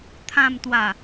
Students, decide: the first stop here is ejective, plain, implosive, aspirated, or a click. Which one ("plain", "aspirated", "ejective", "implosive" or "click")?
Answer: aspirated